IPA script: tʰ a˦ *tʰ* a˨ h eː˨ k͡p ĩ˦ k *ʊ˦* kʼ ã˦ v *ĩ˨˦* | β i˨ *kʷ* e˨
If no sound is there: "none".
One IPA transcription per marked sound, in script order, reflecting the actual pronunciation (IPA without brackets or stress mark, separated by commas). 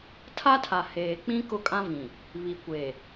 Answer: tʰ, ʊ˦, ĩ˨, kʷ